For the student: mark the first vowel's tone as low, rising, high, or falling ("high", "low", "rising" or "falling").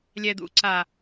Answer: low